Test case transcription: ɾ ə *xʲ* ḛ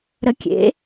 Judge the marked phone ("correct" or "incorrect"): incorrect